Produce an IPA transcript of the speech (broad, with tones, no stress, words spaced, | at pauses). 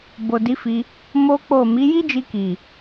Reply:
bo˨di˨˦fi˧ | mo˦k͡po˦˨ mi˨˦ ji˦d͡ʒi˧ki˨